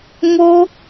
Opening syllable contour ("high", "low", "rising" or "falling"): high